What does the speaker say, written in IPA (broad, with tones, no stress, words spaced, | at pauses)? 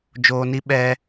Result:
d͡ʒoː˧ni˦ ɓɛ˦